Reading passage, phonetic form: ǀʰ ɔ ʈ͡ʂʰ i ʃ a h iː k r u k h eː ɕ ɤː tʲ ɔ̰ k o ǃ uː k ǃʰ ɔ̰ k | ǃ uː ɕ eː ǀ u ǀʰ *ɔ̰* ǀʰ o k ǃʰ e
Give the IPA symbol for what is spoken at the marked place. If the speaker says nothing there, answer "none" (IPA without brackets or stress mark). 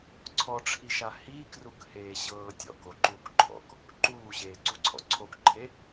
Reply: ɔ̰